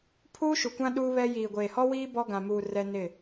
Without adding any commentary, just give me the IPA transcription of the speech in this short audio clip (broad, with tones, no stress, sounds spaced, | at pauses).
pʰ uː˦ ʃ u˨ kʷ ã˦ ɗ uː˦ β ɛ˦ j iː˨ ɡʷ eː˨ h ɔ˦ w iː˦ b ɔ˦ ɡ ã˨ m uː˨ r ɛ˦ n ɪ˦˨